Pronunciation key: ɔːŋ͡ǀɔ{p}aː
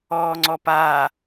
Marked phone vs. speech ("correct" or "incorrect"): correct